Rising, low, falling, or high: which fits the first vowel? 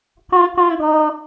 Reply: high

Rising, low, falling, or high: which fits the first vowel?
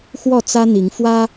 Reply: falling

